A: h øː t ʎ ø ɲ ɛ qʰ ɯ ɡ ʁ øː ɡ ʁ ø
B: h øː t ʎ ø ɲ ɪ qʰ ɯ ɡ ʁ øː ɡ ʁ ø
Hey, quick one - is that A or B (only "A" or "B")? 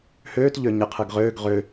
B